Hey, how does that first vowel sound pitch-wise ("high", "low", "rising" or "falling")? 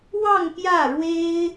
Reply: falling